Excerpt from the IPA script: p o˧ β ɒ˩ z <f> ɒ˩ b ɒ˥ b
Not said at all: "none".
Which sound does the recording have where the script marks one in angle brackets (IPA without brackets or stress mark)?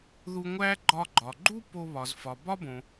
f